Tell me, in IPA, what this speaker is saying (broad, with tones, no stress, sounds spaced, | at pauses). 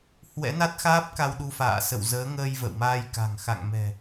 h w ɛ̰˧˥ n a˦˥ t̚ x aː˦˥ p̚ k a˧ w ɗ u˧ f a̰ː˧˨ s ə̰˧˨ w z əː˨˦ ŋ əː˧ j v ə̰˧˨ w m aː˧ j k a̤˨˩ ŋ x a̰˧˨ ŋ m ɛ̤˨˩